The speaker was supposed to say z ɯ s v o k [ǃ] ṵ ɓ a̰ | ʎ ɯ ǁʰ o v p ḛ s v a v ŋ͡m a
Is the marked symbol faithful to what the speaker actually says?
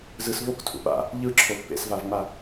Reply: no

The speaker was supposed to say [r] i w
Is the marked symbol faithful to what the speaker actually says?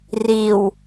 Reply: yes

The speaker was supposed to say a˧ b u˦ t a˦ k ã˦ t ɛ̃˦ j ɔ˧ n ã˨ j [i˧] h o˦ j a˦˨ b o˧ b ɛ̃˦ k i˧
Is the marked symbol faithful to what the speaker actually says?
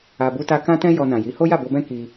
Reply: no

